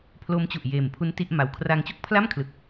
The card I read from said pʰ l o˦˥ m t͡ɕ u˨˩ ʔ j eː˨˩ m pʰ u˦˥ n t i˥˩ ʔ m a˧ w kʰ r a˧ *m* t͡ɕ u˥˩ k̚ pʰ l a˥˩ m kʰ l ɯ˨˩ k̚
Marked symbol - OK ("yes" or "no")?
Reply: no